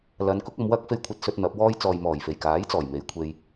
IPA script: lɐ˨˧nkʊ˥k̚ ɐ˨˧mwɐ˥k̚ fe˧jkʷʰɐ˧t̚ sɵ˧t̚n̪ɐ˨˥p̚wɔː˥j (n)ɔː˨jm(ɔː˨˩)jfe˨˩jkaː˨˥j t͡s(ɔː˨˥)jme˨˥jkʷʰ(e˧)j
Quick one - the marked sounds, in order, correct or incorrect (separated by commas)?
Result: incorrect, correct, incorrect, correct